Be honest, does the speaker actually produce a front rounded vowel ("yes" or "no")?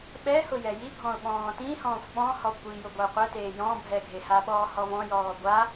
no